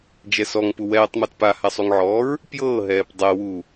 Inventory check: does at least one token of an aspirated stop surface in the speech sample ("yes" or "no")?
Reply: no